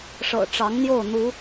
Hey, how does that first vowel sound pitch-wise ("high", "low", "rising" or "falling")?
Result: low